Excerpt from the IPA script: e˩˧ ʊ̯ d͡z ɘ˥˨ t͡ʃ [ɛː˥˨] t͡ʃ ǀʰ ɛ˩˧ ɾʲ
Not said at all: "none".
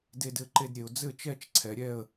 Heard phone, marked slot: ɛ˥˨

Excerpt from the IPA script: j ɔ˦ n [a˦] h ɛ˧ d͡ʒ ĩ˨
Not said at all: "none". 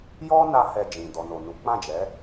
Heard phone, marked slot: a˦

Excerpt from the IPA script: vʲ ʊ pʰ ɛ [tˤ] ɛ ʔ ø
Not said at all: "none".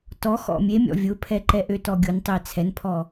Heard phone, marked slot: ǃ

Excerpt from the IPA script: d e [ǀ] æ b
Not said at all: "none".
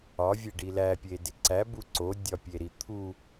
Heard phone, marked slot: ǀ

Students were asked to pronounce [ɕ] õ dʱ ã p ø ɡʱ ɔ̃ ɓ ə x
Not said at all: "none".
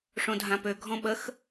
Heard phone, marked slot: ʂ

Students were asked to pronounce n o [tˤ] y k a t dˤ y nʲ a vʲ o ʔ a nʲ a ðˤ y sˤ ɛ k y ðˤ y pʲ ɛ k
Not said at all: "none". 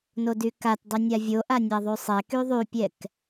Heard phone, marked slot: d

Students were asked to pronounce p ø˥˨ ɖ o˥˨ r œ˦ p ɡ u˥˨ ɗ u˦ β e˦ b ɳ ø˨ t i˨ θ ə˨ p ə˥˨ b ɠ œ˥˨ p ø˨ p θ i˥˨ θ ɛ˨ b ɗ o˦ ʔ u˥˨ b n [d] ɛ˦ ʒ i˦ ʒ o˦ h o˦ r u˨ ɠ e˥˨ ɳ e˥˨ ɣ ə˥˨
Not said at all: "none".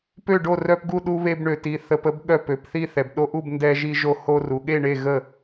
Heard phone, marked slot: d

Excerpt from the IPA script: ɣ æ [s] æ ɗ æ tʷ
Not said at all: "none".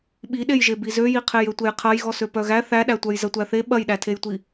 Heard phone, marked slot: θ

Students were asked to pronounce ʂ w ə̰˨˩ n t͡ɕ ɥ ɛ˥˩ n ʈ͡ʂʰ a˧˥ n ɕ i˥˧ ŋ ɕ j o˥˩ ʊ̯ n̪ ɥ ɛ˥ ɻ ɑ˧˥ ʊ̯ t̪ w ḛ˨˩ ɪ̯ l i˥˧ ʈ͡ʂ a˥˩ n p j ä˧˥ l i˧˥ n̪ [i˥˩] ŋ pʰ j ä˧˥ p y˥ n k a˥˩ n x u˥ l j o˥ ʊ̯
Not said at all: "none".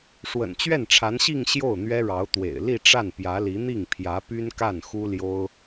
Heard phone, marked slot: i˥˩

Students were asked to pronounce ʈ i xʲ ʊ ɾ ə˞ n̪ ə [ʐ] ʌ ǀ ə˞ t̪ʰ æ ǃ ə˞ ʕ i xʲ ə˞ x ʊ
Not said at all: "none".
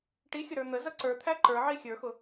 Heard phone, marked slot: z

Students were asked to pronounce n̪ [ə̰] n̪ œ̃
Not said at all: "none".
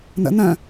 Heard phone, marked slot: ə̰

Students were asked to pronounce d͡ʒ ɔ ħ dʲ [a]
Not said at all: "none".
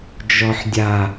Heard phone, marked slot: a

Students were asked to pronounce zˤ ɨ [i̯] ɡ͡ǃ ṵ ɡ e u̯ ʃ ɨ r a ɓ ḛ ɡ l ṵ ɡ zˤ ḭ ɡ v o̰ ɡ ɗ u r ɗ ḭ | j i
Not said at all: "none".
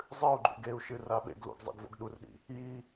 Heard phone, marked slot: u̯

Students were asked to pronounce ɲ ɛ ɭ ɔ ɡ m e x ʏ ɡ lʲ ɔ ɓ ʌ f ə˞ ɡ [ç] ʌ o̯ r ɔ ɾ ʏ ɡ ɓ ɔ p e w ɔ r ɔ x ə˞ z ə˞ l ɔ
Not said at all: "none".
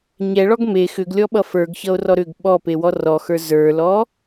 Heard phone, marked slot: ç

